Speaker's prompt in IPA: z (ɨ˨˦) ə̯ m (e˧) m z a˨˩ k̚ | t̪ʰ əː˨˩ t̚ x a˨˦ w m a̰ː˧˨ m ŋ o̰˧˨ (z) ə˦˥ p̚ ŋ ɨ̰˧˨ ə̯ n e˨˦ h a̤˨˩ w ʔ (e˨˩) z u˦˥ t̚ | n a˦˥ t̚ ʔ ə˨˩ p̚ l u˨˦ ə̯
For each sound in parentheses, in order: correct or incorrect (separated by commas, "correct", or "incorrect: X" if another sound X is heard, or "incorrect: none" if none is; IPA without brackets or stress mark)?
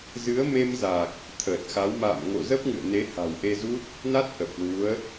correct, correct, correct, incorrect: e˧